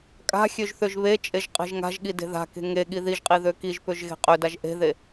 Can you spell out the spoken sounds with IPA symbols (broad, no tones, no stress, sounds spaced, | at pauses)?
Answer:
kʼ a̤ xʲ ø ʒ θ ø ʒ β e t͡ʃʼ e ʒ qʼ e̤ ʒ ŋ a̤ ʒ ɠ i d e̤ ð a̤ k e̤ ŋ e ɠ i ð i ʒ qʼ i ð ø k i ʒ p ø ʒ ɣ e̤ qʼ ø d a ʒ ʔ e̤ ð e